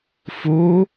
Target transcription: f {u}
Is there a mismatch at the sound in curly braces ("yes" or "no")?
no